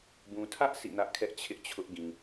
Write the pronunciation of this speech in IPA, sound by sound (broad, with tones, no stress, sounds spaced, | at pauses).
b ũ˨ tʰ ä˦ ʔ sʰ ḭ˦˨ n ä˦ ʔ kʰ ɛ˦ ʔ t͡ɕʰ ɪ˦ ʔ t͡ɕʰ ʊ˦ ʔ ɡ ĩ˨